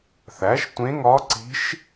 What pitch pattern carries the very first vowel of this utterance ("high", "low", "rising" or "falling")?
rising